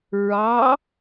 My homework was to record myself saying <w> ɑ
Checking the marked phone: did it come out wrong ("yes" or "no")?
yes